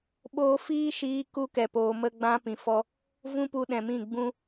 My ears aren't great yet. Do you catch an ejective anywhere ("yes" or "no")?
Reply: no